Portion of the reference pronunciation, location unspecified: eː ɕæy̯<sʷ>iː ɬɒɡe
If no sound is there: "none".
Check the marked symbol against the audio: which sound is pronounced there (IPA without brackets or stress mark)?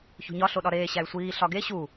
sʷ